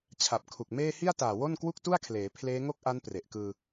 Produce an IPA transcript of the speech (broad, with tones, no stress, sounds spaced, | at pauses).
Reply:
t͡ɕʰ a˨˩ p̚ kʰ u˨˩ k̚ m eː˥˩ h i˥˩ a̯ t aː˨˩ w o˥˩ n k w u˥˩ k̚ t u˥˩ a̯ kʰ l eː˩˦ pʰ l eː˦˥ ŋ o˥˩ k̚ ʔ a˦˥ n p r e˨˩ ʔ k ɯː˧